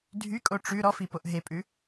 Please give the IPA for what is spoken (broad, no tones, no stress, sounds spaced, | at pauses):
dʱ y kʼ o ʈ͡ʂ ʉ ɾ ɔ f i p o ʔ ɦ e pʼ ʉ